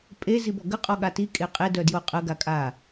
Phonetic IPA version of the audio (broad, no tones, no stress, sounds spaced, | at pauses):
pʼ e z i b ɔ ɡ ə qʼ ɔ ɠ a t i kʼ e qʼ e d œ d j o qʼ ə ɡ a kʼ a